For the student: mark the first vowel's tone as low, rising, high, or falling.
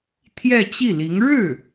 falling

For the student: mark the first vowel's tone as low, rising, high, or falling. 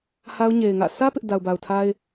high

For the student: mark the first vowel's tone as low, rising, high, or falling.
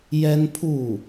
high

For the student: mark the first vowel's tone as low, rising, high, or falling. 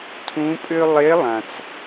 rising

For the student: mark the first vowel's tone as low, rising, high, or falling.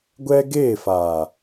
high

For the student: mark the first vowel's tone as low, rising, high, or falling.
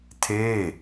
falling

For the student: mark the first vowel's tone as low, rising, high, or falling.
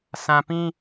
low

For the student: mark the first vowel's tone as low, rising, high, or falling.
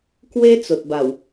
high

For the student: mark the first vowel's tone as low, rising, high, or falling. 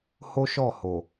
high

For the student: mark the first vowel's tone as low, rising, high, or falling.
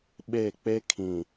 falling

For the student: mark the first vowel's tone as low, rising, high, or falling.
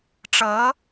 rising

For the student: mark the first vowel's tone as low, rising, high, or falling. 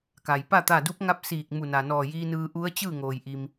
low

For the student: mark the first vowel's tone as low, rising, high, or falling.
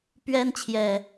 high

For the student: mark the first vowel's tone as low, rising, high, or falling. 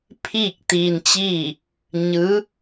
falling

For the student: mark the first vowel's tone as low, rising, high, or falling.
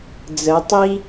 rising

